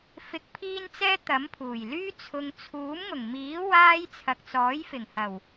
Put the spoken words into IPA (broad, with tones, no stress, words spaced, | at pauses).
fɪ˨k̚pʰiː˧n t͡sɛː˥t̪ɐ˨˥mpʰuː˨˩jlyː˥ t͡sʰʊ˨ŋt͡sʰuː˨˥mŋʊ˨˩ŋmiː˨˥ waː˥j t͡sʰɐ˨k̚t͡sɔː˨˥jfɪ˨˩ŋhɐ˨˩w